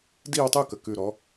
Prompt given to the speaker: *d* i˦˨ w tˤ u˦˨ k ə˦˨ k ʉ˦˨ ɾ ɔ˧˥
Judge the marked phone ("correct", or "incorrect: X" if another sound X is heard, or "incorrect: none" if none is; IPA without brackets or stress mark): correct